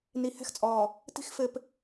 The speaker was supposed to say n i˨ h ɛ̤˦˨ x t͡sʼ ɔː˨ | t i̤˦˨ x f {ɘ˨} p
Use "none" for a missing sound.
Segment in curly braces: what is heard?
ɘ˨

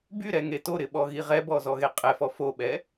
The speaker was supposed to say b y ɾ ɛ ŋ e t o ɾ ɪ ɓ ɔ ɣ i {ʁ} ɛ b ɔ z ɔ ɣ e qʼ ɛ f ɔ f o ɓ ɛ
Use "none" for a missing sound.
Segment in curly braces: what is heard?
ʁ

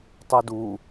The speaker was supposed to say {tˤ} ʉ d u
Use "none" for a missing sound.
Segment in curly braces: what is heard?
tˤ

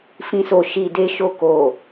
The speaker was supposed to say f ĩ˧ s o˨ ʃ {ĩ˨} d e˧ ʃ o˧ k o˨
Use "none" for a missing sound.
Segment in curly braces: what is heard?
i˨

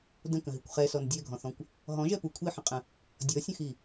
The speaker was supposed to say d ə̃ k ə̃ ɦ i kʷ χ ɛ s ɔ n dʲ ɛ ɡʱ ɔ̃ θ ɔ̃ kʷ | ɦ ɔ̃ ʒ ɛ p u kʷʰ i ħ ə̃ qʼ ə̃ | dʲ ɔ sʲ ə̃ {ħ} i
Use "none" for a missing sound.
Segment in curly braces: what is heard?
x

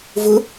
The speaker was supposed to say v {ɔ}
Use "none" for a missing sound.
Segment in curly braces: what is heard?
ʊ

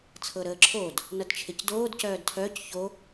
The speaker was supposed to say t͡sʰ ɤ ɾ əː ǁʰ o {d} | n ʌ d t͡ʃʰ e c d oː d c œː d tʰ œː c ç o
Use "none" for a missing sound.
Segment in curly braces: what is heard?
d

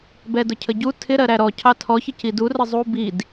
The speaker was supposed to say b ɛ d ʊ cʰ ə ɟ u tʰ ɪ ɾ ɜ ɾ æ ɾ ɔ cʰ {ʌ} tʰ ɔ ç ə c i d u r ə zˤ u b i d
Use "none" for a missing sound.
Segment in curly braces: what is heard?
ɑ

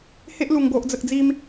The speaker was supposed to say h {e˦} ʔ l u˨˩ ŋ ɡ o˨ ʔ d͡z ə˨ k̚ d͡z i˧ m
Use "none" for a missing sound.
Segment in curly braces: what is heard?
e˦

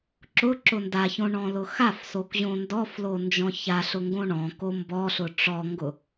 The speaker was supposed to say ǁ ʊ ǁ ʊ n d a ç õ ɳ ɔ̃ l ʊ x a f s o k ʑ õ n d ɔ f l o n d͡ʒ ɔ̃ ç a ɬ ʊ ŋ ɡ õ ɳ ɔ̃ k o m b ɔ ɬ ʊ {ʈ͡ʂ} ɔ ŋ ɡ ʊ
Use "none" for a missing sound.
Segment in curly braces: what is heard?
ʈ͡ʂ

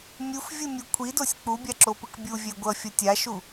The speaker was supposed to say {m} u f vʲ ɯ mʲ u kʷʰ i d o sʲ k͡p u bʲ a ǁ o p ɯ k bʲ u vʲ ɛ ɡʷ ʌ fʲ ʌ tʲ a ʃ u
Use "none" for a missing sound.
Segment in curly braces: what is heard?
mʲ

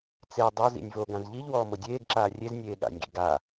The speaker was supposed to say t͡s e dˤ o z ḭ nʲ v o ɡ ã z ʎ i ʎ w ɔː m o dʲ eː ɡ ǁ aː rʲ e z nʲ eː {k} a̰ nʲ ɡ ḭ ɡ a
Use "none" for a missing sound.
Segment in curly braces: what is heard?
ɠ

